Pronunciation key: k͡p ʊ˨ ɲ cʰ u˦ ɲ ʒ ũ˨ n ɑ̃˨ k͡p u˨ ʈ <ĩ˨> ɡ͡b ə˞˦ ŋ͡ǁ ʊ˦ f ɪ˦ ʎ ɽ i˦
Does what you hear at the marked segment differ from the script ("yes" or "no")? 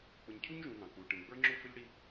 no